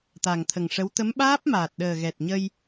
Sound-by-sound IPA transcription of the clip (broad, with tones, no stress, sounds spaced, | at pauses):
t̪ a˨˩ ŋ t̪ʰ ə˨˩ ŋ ʂ ə˧˥ w t̪ ə˧˥ m ɓ aː˦˥ p̚ m aː˨˩ t̚ ɗ əː˨˩ ɣ ɛ˨˩ t̚ ɲ ə˧ j